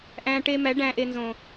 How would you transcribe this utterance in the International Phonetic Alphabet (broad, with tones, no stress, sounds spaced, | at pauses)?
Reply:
ʔ æ̃˧ ʈ e˧ m æ˨˦ ɖ æ̃˦ ʔ e˧ n z õ˨